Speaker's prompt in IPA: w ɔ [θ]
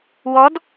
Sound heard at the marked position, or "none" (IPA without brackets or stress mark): d